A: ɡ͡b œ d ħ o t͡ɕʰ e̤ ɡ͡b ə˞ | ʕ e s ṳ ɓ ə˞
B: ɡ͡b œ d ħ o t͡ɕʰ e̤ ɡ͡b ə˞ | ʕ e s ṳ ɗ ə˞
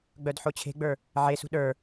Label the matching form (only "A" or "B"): B